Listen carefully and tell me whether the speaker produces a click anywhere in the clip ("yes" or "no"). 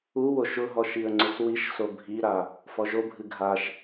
yes